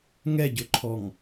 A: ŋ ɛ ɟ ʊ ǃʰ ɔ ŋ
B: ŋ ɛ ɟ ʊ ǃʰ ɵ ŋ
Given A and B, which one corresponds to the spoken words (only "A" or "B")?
A